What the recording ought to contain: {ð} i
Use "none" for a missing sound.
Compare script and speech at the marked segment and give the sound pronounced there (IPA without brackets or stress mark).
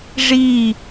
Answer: ʐ